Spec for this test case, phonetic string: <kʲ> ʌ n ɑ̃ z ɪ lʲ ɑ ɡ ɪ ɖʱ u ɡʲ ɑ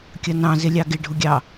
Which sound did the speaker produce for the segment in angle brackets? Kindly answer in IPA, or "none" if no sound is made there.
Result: kʲ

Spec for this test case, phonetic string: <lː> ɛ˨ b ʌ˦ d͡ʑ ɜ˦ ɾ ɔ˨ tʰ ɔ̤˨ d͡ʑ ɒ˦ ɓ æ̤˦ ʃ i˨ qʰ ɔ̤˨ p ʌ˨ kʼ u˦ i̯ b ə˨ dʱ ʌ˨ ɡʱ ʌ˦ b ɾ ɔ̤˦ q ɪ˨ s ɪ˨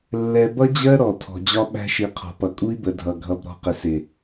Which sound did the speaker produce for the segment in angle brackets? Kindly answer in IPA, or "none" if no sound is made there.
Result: lː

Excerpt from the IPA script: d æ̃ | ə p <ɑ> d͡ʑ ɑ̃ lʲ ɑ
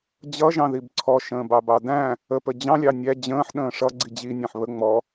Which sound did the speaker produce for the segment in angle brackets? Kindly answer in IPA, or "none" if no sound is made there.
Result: ə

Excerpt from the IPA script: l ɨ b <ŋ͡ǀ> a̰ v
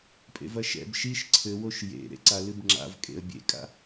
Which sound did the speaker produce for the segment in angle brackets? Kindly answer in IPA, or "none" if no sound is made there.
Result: ŋ͡ǁ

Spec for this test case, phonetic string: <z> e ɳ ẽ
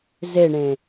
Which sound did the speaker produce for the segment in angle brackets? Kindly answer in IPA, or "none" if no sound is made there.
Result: z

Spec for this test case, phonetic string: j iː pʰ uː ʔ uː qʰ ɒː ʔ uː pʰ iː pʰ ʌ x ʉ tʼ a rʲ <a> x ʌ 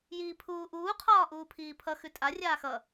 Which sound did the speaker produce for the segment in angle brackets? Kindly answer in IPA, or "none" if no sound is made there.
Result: aː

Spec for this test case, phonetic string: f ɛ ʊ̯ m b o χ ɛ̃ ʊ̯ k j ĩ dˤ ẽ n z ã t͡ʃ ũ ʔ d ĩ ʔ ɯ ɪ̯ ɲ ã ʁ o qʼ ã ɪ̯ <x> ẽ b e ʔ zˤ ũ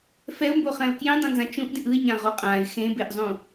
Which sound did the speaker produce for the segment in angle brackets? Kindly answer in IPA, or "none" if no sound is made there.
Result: x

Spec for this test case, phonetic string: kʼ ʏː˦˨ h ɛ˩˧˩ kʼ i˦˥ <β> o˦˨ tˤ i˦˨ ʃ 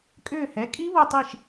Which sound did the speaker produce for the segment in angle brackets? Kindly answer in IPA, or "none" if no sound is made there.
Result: β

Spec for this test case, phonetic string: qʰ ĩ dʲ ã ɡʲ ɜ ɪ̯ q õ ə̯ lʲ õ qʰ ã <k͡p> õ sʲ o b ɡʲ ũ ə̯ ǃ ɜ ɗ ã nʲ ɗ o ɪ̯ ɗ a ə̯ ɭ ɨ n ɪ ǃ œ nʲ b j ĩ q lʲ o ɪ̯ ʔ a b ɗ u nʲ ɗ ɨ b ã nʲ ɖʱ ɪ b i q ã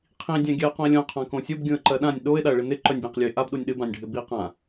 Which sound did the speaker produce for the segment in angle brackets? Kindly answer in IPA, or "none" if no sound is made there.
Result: k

